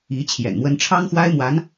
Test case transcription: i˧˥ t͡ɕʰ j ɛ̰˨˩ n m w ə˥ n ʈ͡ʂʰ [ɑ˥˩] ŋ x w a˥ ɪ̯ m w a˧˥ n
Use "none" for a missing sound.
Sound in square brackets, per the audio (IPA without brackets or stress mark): ɑ˥